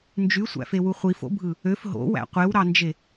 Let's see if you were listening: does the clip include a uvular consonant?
yes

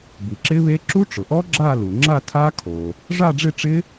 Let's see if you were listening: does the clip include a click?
yes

